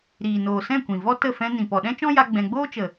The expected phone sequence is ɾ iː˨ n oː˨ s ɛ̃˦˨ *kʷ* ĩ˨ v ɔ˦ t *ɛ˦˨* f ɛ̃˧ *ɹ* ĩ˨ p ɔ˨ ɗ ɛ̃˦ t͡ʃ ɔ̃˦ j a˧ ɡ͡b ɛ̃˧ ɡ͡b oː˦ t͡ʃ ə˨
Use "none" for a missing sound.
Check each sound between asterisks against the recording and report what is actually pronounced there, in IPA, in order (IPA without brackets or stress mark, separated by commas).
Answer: kʷ, ə˦˨, n